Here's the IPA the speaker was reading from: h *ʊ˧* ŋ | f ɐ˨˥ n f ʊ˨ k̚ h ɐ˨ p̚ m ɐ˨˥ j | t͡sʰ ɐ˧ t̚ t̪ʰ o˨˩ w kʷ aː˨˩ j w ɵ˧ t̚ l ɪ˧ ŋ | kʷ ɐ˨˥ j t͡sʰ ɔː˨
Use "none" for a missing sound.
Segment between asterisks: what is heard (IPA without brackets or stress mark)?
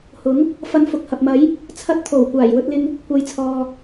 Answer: ʊ˨˥